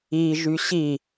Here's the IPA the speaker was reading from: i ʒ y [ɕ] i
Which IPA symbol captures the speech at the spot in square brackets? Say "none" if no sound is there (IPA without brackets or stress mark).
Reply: ɕ